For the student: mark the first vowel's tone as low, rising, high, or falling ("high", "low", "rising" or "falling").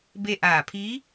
falling